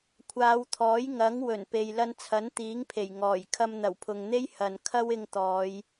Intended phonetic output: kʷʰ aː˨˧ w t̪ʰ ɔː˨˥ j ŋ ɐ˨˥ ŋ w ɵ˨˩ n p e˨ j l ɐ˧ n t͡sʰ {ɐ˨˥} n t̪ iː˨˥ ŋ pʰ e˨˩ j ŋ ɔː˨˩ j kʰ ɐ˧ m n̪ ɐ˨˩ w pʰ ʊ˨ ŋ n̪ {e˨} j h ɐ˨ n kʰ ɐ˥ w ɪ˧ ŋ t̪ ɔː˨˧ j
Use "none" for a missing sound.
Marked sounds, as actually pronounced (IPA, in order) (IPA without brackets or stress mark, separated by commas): ɐ˨˥, e˥